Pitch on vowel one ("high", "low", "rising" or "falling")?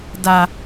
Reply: low